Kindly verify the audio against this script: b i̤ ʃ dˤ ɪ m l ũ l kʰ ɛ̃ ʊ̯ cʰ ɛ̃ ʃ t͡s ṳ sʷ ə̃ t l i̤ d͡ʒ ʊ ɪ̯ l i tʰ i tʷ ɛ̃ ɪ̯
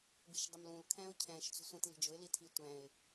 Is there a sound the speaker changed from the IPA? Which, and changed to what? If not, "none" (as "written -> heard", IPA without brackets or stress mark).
none